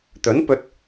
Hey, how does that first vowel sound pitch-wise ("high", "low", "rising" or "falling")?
rising